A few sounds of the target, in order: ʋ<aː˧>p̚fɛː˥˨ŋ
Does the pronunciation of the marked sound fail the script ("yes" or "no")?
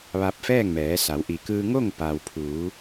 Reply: yes